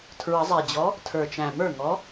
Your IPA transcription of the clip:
tʰ ɹ ə˨˩˦ zˤ ɛ˨˩ d͡ʑ ɔ˨˥ | tʰ ə˞˨˩ t͡ʃ æ̃˨˩ m ə˞˥˩ ŋ ɔ˨˥

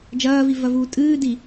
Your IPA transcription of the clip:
d͡ʒ ɐː v i v ɐ v uː tʼ ɨː d i

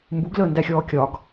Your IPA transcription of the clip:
m b u ɡ l əː n d æ xʲ ɔː kʲ ɒ ɡ

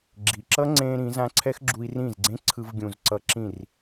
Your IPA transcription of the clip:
ɡ͡ǁ i˨ ǁ ʌ˦ ŋ͡ǀ ẽː˧ ɾ ĩ˨˦ z ã˦ ǀʰ ɛ˦ x ɡ͡ǁ u˧ i̯ r ĩ˦˨ z ɡ͡ǀ ẽ˦ ǀʰ ɯ˧ v ɡʲ ũ˨ z ǀ ʌ˧ ǁ ĩ˦˨ r

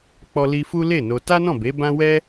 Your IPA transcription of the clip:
k͡p ɔ˧ l i˧ f u˦ l e˦˨ n o˧ t a˦ n ɔ̃˦˨ b e˨˦ b ã˦ w ɛ˦

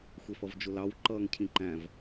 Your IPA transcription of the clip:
xʷ ɛ f ʌ v d͡ʒ ʊ l ɑ w ǃ ʌː ŋ cʰ ĩ ǃ æ̃ v

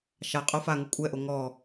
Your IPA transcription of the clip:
ʃ a qʼ o f a ŋ u kʷʼ ɛ ʔ o ŋ ɔ

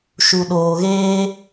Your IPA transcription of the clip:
ʃ u˨ ɗ oː˨ ɣ eː˦

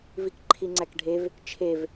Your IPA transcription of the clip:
v i k ǃʰ i ŋ͡ǀ æ k ɖʱ e v | t͡ʃʰ e v

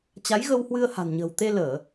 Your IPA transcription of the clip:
t͡ɕ a˨˦ j ɣ ə˧ w h w ɨ˧ ə̯ h a̤˨˩ n ɲ ə̤ː˨˩ w t̪ e˧ l əː˧˩˨

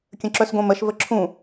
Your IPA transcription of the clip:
kʲ ə̃ ǁ œ s ɡ õ m ə ʃ v ə ǁʰ ũ

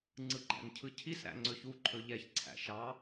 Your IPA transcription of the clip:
ŋ͡ǀ ɯ ɡ͡ǃ æ̰ n cʰ ɯ cʰ i s ɾ æ̰ ŋ͡ǀ ɵ ç u ǃʰ ɵ ʎ ɛ ç ǀʰ æ̰ ʃ ɑ

